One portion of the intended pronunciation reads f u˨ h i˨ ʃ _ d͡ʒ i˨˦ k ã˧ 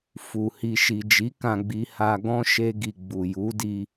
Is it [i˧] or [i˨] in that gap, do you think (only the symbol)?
i˨